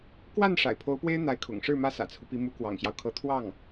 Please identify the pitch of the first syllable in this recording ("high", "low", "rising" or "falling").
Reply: falling